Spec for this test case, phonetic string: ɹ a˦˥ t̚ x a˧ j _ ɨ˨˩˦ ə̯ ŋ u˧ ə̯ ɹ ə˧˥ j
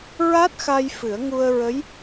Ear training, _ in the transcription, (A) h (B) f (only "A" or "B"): B